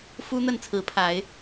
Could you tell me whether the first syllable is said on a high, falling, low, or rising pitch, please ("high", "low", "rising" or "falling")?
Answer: high